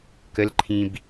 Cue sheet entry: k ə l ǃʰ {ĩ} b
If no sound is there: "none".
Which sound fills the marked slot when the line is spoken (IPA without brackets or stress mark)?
ĩ